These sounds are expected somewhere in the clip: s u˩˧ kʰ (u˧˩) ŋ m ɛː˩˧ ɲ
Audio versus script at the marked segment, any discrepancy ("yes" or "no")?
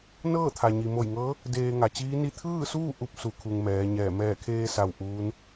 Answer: yes